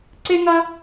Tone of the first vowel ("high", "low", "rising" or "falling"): high